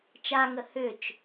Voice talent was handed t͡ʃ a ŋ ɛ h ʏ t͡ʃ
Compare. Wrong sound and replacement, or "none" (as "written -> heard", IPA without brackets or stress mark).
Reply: ɛ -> ə